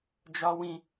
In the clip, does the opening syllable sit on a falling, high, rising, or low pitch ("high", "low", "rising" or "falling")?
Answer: high